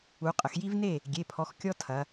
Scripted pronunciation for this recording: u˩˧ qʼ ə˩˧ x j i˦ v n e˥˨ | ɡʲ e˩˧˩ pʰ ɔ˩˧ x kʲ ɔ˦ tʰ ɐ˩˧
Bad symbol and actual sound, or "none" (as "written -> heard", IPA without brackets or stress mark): none